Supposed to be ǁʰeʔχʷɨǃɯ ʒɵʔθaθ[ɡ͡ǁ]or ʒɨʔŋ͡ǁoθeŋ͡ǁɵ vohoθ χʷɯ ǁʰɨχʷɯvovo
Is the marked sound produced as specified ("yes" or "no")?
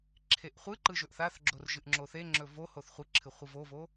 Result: yes